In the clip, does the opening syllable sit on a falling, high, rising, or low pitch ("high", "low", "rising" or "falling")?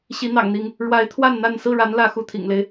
rising